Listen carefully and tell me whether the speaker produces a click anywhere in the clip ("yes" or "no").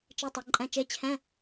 yes